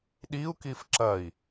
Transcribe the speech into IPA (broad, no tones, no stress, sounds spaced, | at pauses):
ɗ i u̯ k i f ǁ ɐ i̯